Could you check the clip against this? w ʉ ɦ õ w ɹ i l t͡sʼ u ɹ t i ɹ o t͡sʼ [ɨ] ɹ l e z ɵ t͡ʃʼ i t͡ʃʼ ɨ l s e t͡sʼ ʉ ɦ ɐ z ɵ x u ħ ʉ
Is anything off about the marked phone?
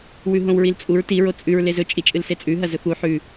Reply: yes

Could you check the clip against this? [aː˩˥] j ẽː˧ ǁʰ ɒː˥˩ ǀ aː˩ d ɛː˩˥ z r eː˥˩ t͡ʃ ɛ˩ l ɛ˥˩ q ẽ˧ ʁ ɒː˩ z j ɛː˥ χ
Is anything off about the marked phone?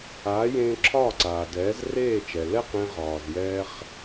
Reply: no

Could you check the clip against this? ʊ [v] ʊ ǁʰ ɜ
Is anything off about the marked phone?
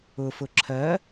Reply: yes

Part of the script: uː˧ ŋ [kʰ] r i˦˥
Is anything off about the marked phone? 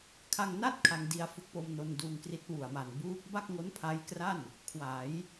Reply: yes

